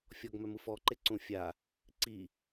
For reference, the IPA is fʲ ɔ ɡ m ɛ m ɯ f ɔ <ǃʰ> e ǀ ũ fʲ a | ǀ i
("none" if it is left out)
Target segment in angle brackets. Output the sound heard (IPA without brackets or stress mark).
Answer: ǃ